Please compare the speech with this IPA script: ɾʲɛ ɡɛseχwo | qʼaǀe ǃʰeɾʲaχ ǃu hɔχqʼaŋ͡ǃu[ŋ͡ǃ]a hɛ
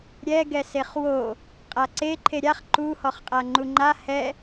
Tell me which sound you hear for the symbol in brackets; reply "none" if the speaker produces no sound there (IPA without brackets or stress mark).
ŋ͡ǃ